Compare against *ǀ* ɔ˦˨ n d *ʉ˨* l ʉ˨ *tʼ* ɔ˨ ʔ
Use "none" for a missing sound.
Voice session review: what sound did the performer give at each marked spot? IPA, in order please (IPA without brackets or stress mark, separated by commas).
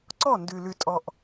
ǀ, ʉ˨, tʼ